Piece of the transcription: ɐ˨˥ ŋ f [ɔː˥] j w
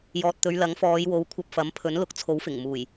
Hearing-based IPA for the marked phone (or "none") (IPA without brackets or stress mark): ɔː˨˧